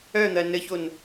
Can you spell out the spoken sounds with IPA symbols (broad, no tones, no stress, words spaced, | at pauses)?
œn̪ɐ nəçon